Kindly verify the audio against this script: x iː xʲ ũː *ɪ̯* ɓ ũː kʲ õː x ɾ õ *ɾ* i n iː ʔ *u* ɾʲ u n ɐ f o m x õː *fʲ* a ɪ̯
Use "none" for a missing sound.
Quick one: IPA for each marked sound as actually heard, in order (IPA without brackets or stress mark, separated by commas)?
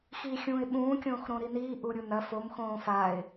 ɪ̯, ɾ, u, f